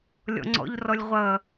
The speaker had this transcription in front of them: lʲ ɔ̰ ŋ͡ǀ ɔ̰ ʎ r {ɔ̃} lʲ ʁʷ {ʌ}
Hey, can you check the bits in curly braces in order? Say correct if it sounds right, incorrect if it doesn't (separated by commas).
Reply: incorrect, correct